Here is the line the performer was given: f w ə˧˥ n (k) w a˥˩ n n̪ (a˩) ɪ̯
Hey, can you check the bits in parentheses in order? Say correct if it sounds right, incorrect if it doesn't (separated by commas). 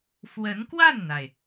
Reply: correct, correct